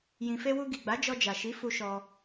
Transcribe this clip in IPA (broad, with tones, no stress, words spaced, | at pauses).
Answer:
jĩ˨fe˧wu˧ ɡi˨ɡ͡ba˨˦ d͡ʒɔ˧d͡ʒa˨ ʃi˨˦fu˧ ʃɔ˧